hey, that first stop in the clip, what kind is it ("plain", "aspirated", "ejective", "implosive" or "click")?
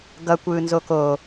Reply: plain